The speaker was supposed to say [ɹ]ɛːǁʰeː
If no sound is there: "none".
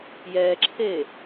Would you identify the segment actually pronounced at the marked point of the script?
j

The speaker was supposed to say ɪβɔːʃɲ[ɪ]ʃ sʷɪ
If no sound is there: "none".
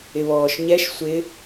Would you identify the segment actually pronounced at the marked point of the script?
ɛ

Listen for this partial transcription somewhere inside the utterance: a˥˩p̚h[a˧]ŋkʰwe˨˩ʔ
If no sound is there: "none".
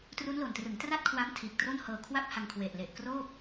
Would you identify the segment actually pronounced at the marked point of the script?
a˧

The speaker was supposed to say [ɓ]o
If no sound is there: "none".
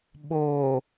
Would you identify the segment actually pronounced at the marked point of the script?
ɓ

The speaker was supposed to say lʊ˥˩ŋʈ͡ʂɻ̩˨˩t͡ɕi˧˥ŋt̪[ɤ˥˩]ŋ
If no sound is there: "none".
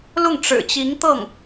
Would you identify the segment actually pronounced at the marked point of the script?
ɤ˥˩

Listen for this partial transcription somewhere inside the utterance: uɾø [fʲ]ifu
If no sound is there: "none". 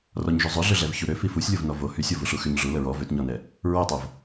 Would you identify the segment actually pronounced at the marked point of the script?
f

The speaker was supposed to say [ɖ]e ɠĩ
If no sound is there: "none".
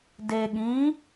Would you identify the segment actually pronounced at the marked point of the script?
d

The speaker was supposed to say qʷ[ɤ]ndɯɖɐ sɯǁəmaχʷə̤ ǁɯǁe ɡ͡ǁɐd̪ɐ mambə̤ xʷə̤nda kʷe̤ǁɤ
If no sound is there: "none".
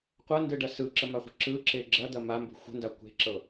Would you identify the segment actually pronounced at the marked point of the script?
ɤ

